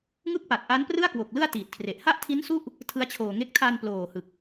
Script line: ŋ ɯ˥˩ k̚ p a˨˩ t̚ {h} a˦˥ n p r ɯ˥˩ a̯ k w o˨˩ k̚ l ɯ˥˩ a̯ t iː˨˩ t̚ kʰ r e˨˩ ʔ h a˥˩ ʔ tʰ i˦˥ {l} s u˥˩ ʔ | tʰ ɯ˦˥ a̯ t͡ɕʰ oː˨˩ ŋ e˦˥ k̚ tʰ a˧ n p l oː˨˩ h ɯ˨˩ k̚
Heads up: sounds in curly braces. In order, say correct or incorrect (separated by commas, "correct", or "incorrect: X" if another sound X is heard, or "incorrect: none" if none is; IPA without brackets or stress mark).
incorrect: ʔ, incorrect: n